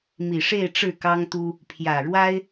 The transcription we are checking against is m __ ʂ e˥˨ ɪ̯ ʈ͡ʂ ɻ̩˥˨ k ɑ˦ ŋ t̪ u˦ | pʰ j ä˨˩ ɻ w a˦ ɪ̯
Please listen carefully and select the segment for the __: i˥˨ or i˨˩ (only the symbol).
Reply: i˨˩